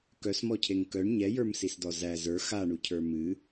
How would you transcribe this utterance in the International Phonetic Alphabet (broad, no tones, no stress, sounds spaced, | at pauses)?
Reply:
k œ s m ɔ cʰ e ŋ k œ ɳ ɲ ɛ j ə˞ m s i s d ɔ z æ z ə˞ x a ɳ u cʰ ə˞ m ɨ